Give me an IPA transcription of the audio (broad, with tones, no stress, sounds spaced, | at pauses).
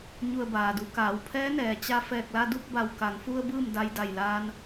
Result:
ɲ u˧˩ ə̯ b aː˩ d u˩˧ k aː˩˧ w pʰ ɛː˧˥ n ɛː˩ t͡ɕ a˧ f ɛː˧˩ k̚ l a˧ d u˥˨ k̚ b a˧˩ w k a˩˧ ŋ f u˧ ə̯ b ɯː˥˨ m d a˧ j d a˧˩ j l aː˧ n